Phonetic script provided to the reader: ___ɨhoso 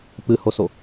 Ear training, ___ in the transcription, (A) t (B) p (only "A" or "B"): B